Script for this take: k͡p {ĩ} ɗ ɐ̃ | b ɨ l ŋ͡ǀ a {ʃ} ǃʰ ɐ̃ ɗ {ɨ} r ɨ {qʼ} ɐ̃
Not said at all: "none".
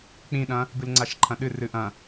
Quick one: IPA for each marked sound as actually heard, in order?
ĩ, ʃ, ɨ, ʔ

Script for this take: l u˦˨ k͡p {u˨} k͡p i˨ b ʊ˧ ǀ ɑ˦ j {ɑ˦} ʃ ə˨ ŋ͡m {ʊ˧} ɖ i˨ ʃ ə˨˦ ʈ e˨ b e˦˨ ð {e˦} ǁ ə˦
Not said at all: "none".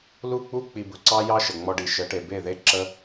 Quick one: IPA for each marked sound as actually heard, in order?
u˦, ɑ˦, ɔ˧, e˦

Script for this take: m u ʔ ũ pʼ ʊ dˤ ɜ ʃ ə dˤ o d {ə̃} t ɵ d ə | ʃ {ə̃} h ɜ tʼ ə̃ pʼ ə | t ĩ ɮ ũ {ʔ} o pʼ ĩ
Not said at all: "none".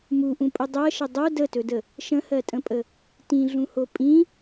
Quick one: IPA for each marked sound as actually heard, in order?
ə, ə̃, h

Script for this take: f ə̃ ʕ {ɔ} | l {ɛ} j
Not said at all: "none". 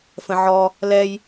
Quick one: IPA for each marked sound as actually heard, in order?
ɔ, ɛ

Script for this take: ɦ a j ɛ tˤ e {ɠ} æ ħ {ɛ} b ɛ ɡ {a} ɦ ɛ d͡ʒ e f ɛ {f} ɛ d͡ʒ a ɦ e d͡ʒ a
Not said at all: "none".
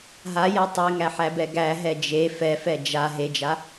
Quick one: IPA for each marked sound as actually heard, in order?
ŋ, æ, æ, f

